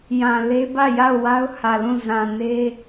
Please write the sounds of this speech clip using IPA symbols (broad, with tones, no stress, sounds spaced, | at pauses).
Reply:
j ã˨ l e˦ b ä˦˨ j a˦˨ ʊ̯ w a˦ ʊ̯ h ä˨ l ũ˦˨ z ã˨ n e˦